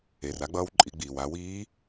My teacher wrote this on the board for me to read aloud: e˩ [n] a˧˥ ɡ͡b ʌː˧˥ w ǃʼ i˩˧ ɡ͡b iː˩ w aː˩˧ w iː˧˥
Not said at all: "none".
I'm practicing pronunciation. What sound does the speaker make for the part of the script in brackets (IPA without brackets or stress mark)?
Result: r